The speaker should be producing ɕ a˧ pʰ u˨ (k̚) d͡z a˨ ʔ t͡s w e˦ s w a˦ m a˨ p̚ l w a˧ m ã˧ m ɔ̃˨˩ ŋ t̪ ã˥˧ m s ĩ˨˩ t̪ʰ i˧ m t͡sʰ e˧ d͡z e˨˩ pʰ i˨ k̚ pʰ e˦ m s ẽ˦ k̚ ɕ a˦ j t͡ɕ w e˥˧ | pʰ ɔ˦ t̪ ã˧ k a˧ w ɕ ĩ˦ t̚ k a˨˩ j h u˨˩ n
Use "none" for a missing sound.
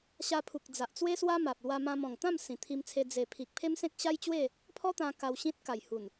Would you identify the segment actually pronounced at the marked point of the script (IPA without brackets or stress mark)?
k̚